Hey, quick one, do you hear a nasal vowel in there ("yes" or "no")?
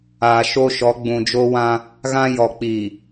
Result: yes